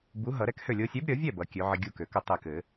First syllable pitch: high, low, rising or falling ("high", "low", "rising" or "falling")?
rising